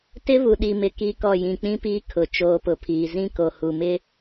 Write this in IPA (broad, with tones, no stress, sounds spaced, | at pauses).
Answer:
t ɪ˦ β u˨ ɗ i˨ m ɪ˨ k i˦ k ɔ˦˨ j ĩ˨ k͡p ĩ˦ p iː˦ kʰ ʊ˨ t͡ʃ oː˨ p ʊ˨ pʰ iː˨ z ĩ˦ k o˨ h u˨ m ɪ˦